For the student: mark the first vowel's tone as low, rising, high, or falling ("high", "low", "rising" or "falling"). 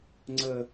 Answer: high